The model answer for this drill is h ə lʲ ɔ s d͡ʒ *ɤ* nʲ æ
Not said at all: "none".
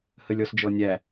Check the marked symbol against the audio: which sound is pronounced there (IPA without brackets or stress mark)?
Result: ɔ